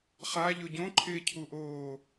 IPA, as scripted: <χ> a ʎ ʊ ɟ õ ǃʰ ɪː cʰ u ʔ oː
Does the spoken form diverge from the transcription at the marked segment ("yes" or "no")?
no